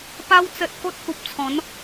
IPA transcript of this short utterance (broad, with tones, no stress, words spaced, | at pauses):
pa˧wt͡sə˨t̚ ko˦t̚hu˨p̚t͡sʰɔ̃˨˦n